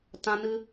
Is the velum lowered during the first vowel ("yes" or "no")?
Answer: yes